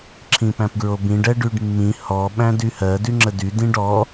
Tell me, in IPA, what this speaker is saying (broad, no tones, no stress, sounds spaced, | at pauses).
ǁʰ ĩ p æ̃ p ɡ ɹ o b ĩ ɖ ɛ ɖ y ɖ mː ĩ h ɔ ɓ æ̃ d y h ɜ d y ŋ͡ǁ ə d y d ĩ ɖ ɔ